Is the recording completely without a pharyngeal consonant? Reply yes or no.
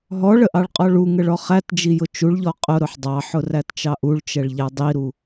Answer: no